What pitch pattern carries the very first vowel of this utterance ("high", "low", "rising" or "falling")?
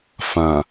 low